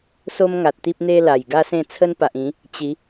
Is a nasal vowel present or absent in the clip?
present